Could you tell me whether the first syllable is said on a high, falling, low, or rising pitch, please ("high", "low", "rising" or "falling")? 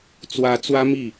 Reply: rising